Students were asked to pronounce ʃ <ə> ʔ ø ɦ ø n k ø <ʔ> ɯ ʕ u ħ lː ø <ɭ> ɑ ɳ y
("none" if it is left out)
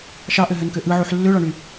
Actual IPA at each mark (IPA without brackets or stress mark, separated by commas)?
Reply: ɑ, ʔ, ɭ